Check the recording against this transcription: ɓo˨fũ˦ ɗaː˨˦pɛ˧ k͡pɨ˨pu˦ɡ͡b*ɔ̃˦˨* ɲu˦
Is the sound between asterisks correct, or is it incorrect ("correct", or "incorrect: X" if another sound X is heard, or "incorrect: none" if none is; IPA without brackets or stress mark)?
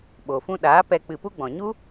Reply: incorrect: ɔ̃˨